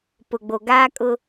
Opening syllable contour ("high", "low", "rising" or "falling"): low